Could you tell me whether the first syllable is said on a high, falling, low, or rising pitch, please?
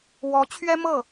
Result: rising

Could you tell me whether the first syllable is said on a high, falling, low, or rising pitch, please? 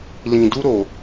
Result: low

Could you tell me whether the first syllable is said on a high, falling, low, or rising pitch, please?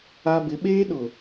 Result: high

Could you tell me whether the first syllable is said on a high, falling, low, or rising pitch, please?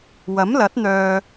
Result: rising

